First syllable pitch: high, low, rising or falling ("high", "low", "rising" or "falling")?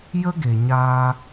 high